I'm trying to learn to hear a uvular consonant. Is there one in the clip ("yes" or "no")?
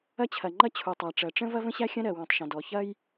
no